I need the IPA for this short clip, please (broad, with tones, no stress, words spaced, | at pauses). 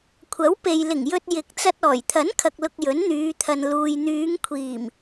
kʷʰɐ˨˥wpe˨jlɪ˨˩ŋjɵ˧t̚ jɪ˨˥k̚t͡sɐ˧t̚ ɔː˨˩jt̪ʰɐ˨˥nkʰɐ˨k̚lʊ˨k̚ jɵ˨˥nn̪yː˨˧t̪ʰɐ˨n luː˨jn̪yː˨˧ŋkʷʰiː˨˩m